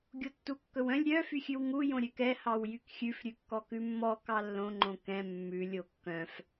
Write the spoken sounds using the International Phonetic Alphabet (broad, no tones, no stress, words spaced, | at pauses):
ɡʲotːukːɵwœ̃lʲ ɾʲœ fyxʲʉwŋu jõɾʲøkɛ hɑwjykxʲʉf ɾʲʉkːɔkʉmːɔ kɑlːõ ŋ͡ǃõkɛ̃ mːʉ lʲokːœ̃f